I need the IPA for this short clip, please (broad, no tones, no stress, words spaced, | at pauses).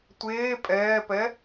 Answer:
tʷeː pʼɛːpɛ